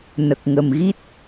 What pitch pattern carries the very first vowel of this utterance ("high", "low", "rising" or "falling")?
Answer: low